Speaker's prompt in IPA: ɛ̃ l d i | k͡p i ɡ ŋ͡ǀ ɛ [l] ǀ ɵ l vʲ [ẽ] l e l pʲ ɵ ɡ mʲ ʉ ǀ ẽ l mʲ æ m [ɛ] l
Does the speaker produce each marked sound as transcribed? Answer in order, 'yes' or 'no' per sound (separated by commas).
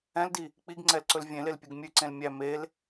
yes, yes, no